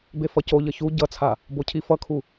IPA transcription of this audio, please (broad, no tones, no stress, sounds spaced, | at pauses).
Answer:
b e f ʌ c o ʎ ʌ ç u ɟ ʌ t͡sʰ a | b o cʰ i f ʌ kʰ u